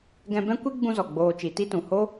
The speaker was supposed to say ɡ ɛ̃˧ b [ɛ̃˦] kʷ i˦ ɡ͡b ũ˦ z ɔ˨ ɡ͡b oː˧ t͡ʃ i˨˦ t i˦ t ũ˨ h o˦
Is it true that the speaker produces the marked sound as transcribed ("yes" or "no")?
yes